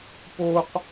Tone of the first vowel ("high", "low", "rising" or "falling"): high